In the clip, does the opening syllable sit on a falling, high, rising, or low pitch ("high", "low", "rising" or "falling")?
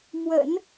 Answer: low